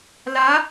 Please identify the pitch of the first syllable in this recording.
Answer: rising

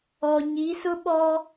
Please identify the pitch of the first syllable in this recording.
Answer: low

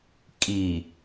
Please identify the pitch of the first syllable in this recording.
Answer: low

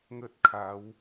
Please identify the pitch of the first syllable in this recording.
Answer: high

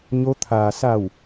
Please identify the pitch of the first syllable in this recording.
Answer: rising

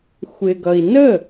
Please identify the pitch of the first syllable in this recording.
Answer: low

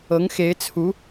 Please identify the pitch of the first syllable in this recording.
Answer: rising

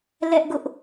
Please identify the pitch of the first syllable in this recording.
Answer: high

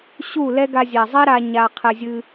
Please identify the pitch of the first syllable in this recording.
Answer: falling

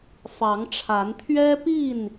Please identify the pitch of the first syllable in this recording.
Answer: rising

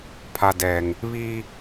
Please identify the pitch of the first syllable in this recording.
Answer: low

